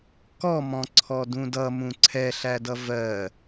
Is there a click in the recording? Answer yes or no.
yes